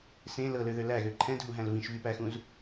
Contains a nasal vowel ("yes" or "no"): yes